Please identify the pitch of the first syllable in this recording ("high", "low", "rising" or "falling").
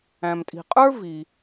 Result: low